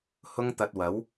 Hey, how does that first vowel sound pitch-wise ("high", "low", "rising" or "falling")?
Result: high